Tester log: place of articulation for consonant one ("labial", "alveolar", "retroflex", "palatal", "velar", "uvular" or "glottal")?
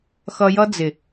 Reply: velar